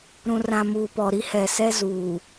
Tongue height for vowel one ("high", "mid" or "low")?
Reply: high